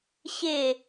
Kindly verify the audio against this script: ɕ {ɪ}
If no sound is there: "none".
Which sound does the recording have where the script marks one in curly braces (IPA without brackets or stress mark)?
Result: ɪ